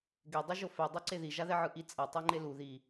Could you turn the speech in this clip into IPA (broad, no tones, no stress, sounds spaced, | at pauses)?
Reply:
ɡ e dˤ ʌ ʒ o f ɛ dˤ o ǀ e ð i ʒ a ð ɛ ʕ ɯ ʔ i t͡sʼ ʌ tˤ a ŋ͡ǃ e l u ð i